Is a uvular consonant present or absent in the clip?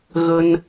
absent